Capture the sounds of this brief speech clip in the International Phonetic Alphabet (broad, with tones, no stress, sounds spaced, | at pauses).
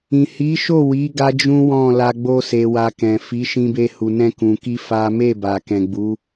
ĩ˨ h i˨˦ ʃ o˦˨ w i˨˦ ɡ a˦ d͡ʒ ũ˦ w ɔ̃˦˨ l a˧ ɡ͡b o˧ s e˨ w a˧ k ɛ̃˨ f i˨˦ ʃ ĩ˧ b e˧ h u˨ n ɛ̃˧ k ũ˨ k i˧ f a˦ m e˦˨ b a˨ k ɛ̃˨ ɡ͡b u˨˦